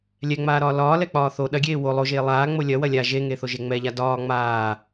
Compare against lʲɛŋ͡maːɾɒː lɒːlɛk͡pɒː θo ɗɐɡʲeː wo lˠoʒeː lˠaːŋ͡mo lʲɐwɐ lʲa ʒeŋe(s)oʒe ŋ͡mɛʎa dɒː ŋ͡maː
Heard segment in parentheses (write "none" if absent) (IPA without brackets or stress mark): θ